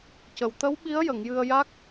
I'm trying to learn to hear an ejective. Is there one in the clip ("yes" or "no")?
no